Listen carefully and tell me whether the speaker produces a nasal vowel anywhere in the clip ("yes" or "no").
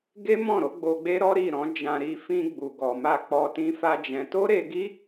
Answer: yes